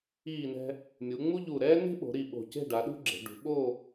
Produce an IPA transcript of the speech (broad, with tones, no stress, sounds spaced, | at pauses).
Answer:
iː˧˩ n ɛ̤˧ | mʲ u˩˧ ŋ͡m u˥ ʎ u˧˩ ɾ ɛː˥ n e̤˥ ɓ o̤˩˧ ɾ i˧˩ ɓ o̤˧˩ c e̤˥˧ ɖ a˩˧ ɗ ṳ˥ ɡ͡ǁ e̤˩˧ ɖ ṳ˩˧ ɓ o˥˧